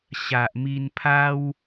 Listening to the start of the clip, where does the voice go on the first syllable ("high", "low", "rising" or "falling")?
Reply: low